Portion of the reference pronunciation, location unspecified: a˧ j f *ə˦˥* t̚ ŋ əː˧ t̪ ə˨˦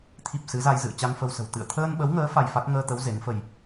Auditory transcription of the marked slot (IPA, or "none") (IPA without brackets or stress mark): a˦˥